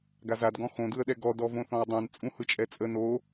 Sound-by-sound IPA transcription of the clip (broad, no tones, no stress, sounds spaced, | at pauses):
ɡ a z a d ɡ ɔ̃ x õ d ɯ ə̯ ɗ ɛ ɡ ɔ d ɔ v õ θ ɔ̃ ə̯ dˤ ɛ̃ n t͡sʼ ũ h ɯ t͡ʃʼ ɛ t͡sʼ ə n o